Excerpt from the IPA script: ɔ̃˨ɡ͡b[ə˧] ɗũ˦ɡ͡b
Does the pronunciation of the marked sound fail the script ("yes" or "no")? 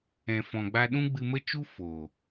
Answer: yes